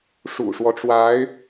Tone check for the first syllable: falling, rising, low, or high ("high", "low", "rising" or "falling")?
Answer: low